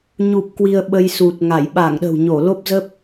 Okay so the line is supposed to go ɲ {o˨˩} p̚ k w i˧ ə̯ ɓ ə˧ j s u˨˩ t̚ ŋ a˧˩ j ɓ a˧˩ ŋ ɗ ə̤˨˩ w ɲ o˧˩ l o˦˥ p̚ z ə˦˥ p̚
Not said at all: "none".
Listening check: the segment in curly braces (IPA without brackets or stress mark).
u˨˩